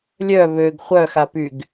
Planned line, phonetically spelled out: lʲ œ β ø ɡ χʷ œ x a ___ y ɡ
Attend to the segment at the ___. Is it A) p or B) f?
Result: A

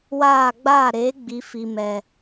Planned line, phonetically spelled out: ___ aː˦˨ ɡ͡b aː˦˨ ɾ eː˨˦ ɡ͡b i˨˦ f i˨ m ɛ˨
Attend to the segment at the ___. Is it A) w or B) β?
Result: A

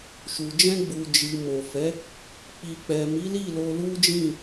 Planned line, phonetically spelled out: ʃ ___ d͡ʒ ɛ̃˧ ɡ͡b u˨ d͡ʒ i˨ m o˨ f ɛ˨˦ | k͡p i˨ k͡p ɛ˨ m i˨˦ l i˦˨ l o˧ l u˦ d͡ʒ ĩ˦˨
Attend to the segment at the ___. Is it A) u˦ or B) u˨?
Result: B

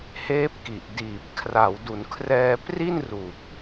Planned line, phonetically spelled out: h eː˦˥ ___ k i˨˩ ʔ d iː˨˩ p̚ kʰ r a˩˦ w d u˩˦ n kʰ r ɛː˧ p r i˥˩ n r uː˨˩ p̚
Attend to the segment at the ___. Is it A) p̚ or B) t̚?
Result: A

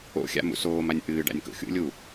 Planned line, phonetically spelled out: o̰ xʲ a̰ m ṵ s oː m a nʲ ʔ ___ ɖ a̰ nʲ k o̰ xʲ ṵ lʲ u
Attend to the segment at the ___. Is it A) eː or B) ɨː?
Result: B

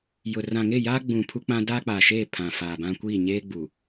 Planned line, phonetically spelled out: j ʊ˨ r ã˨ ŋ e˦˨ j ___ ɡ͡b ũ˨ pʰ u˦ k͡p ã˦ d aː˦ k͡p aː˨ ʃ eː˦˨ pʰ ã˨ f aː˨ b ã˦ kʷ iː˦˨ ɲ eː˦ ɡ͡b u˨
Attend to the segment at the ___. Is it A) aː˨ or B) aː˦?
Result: B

